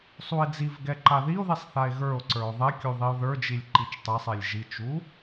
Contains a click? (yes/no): yes